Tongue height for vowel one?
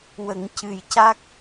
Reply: mid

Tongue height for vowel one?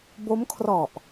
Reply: mid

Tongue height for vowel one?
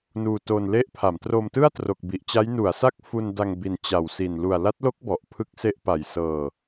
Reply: high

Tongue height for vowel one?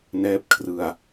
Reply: mid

